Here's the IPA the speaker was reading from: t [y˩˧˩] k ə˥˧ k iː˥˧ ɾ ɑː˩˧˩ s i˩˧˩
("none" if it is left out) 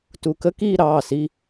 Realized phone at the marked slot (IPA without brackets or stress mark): u˩˧˩